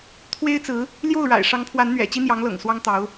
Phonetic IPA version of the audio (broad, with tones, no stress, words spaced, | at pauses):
t̪ʰwe˥ɪ̯t͡sɹ̩˧˥ | ljo˥˩ʊ̯ɻa̰˨˩ɪ̯ ʂɑ˧˥ŋpʰwa˧˥nn̪ɥɛ̰˨˩ t͡ɕi˥n̪jɑ˧˥ŋlɤ̰˨˩ŋ swɑ˥ŋt̪ɑ˧˥ʊ̯